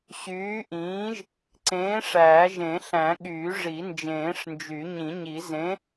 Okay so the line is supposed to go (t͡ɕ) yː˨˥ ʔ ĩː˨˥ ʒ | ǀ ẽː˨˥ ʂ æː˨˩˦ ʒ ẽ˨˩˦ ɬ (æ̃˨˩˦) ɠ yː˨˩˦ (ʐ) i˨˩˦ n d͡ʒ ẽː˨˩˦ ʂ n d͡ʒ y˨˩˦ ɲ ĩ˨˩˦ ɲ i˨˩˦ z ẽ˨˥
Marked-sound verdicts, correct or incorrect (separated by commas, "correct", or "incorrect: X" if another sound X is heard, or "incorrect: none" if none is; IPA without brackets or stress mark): incorrect: ɕ, correct, correct